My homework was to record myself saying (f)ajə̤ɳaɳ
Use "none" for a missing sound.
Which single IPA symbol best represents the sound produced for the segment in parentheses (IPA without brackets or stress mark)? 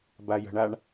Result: b